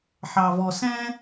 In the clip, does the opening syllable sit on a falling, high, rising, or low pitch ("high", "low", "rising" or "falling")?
low